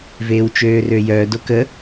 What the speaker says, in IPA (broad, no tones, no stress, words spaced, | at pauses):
veːwt͡ʃøːrøjœ dokə